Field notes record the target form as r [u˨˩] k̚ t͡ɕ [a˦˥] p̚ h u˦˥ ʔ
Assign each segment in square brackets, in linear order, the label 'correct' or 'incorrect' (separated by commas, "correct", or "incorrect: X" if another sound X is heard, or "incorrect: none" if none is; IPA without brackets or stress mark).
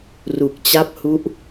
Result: correct, correct